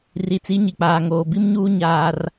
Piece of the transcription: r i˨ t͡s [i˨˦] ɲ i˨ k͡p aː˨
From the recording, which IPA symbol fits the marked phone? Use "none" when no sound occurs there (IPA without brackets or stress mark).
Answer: i˨˦